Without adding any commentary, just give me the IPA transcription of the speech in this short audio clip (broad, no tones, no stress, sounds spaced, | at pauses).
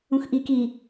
ũ x ʔ i k i